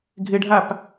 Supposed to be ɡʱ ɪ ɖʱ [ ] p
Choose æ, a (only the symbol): a